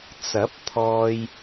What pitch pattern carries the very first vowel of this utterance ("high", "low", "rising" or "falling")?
rising